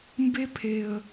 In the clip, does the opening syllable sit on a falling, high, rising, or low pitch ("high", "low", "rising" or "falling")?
high